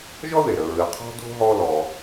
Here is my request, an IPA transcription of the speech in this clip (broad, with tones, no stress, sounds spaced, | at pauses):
ʒ ɔ˥ ð e˩ ɾ ə˨ ɹ ɨ˨ qʰ ɔ̤˥ d o̤˥ ɦ ɔ˦ l ɔ˨